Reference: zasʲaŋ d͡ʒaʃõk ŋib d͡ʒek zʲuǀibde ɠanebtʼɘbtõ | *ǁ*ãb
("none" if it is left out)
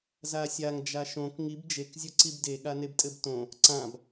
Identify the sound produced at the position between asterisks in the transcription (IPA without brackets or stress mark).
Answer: ǀ